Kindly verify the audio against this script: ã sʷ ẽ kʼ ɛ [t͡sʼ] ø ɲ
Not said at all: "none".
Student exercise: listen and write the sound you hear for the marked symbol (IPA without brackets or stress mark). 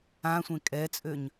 t͡sʼ